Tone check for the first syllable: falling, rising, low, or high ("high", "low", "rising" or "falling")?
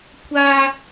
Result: high